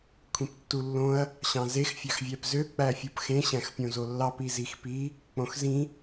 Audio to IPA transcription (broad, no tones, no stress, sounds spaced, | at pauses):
kʷʰ ĩ p tː u lː õ ɐ̯ | ɕ ɑ̃ z e x fʲ ɑ x vʲ æ p z ø k͡p æ fʲ u p x ẽ ɕ æ̃ x pʲ õ z o lː ɑ p i z i x p i | k͡p õ x z ĩ